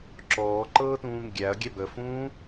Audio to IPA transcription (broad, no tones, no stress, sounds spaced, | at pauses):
ǁ ɔː ǃ ɤː t ũː ŋ ɡʲ æ ɐ̯ ɡʲ ɛ b ə f ũː